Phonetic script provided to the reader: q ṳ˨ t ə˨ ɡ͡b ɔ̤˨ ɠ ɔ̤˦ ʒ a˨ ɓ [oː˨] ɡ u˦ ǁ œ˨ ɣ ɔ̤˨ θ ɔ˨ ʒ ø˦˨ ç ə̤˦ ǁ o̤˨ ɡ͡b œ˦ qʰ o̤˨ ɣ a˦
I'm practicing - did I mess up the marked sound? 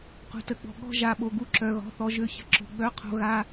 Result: yes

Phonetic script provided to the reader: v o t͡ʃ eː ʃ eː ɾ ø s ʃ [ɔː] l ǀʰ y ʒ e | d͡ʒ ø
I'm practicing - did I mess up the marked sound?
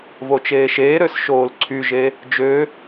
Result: yes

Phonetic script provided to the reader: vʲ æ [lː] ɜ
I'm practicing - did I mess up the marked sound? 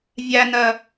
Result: yes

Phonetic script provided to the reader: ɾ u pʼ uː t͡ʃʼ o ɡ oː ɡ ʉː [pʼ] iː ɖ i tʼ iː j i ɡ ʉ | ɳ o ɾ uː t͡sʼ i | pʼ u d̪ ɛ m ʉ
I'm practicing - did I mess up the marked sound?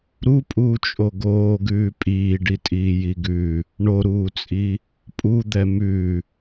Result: no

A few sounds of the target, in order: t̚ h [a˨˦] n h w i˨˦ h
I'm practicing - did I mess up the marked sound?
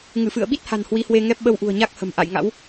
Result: yes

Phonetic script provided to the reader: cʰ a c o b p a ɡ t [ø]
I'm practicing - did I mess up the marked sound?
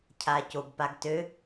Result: no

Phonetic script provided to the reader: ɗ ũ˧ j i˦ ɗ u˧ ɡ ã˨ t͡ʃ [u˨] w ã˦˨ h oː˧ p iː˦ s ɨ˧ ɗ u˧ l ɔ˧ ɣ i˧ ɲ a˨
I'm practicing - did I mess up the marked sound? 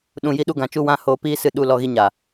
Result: yes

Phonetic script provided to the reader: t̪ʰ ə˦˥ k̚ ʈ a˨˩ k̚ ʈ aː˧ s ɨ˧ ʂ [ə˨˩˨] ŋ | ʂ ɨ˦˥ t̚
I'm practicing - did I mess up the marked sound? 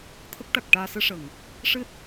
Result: no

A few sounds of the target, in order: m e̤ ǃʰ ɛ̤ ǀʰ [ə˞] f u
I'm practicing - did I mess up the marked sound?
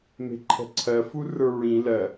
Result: yes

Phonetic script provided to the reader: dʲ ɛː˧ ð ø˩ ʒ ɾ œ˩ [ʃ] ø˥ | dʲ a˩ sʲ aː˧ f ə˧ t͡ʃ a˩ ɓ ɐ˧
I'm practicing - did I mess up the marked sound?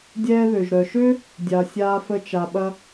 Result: no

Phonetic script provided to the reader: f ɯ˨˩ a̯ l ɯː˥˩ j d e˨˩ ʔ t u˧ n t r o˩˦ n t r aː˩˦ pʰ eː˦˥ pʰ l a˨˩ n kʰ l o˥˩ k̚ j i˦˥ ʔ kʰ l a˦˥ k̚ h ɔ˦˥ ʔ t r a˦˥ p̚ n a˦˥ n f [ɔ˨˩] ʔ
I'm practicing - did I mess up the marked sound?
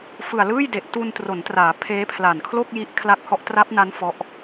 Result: yes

